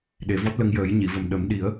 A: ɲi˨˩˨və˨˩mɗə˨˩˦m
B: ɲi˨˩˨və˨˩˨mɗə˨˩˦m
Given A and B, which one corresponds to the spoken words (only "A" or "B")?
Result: A